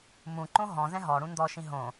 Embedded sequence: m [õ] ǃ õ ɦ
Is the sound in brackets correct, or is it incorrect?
incorrect